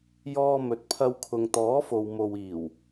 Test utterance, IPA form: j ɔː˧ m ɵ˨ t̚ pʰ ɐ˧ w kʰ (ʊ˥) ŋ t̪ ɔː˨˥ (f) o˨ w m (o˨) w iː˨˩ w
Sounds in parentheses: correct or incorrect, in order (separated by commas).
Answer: incorrect, correct, correct